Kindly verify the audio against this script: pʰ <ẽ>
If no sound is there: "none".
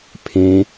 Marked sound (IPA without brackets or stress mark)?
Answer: ẽ